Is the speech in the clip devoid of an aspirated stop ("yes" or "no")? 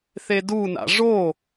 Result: yes